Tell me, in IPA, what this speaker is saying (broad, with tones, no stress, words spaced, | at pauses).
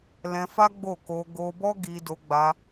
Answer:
lɛ̃˧fa˦ɡ͡bo˦˨ko˧ ɡo˧bɔ˦ ɡi˧do˧ɡ͡ba˧